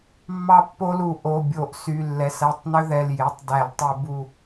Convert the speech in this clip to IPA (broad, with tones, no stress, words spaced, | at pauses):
mːɑ˦pːo˦lu˧˩˧ ʔo˩˧˩bʲo˧˩˧ʔsy˩˧˩ lːɛ˩˧˩sæ˧˩tˤnø˦ ðɛ˩˧˩lje˩˧˩tˤdæ˧˩˧ltˤʉ˧˩˧ bu˧˩